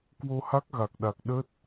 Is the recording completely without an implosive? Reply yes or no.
no